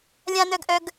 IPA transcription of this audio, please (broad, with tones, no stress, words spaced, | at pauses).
lʲã˥nœ˥ɡʔœ˥ɡ